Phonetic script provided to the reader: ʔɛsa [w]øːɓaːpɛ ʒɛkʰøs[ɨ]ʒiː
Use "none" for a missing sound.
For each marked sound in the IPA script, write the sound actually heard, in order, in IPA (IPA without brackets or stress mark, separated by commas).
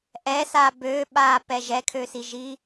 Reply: b, i